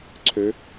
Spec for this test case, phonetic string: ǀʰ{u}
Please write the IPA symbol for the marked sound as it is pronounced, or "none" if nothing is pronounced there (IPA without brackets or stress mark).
ø